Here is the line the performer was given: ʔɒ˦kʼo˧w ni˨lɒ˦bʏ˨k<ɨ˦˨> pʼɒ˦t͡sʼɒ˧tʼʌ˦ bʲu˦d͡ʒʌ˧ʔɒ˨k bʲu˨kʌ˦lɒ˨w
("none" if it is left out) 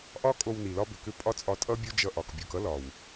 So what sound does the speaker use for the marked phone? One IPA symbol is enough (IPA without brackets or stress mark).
ʏ˦˨